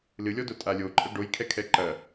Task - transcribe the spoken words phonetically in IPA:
lɨlʲɔdo tʼalʲoǃʼɐ ɖojkʰɛkʰɛ ǃɐ

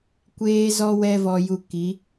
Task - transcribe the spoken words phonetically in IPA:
kʷeː˦zɔ˦ wɛ˦vɔ˧ju˧ki˨˦

